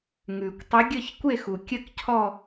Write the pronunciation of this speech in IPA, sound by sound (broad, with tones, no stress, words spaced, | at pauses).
ŋʉ˩kʷtˤə˨˦ ɡʲə˥˧çkʷe˥˧x u˩kʲə˥˧kcʰɔ˥˧